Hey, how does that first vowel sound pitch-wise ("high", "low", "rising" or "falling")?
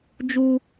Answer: high